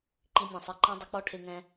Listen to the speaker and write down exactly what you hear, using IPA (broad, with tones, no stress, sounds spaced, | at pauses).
ǃ i˧ nʲ ã˨ sˤ i˨ ǃ ã˦ dˤ ʊ˨˦ k͡p ɔ˦ ʈʰ e˧ ŋ ɛ̃˧